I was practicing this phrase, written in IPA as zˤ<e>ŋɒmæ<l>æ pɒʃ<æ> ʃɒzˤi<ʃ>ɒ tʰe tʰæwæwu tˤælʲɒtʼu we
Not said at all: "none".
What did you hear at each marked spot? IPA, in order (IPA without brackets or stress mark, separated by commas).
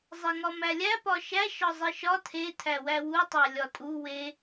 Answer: e, lʲ, æ, ʃ